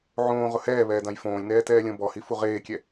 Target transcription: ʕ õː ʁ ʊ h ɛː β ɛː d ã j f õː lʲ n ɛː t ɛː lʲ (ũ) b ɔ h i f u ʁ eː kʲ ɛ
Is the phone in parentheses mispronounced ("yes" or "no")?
yes